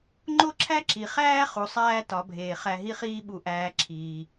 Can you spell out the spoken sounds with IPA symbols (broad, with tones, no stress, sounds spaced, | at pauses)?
ŋ͡ǃ o˥ ǁʰ æ˥ ǁ i˩ χ æː˥ χ u˩˧ sˤ æː˥ t ɒ˩˧ bʱ eː˩ χ æ˧ ɦ i˥ χ iː˥ ɓ u˧ ʔ æː˧ ǁʰ iː˩